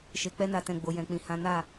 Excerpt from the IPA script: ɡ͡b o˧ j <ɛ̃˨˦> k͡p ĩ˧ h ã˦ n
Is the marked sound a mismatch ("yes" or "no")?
yes